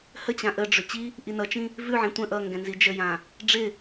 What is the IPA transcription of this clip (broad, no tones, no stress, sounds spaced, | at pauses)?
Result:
h ə t͡ɕ ã ʔ ə ɖ͡ʐ ʏ t͡ɕ i | ʔ i n ʌ t͡ʃ ĩ | v ʉ ʕ ĩ tʷ ə̃ ʔ ʌ ŋ ɡ ɛ̃ n z i d͡ʒ ə j ã | ɖ͡ʐ ɪ